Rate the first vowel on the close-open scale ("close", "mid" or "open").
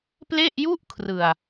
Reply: mid